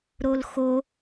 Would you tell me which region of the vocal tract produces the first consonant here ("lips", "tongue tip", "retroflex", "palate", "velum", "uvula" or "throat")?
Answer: tongue tip